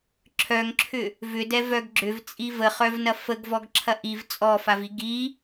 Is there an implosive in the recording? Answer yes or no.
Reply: no